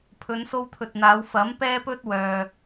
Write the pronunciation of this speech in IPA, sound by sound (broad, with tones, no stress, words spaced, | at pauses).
pʰɵ˨˧nso˧wt̪ʰɵ˨t̚n̪aː˨˧w fɐ˨˥mpɛː˥pɵ˥t̚ wœː˨